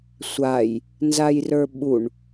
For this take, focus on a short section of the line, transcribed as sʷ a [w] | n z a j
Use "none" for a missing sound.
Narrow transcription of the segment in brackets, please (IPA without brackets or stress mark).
j